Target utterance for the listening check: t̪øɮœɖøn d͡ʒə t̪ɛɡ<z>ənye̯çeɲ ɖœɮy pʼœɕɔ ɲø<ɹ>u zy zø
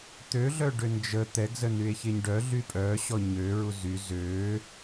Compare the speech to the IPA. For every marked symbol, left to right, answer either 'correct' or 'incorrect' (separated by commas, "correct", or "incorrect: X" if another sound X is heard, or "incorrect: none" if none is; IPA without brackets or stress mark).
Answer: correct, correct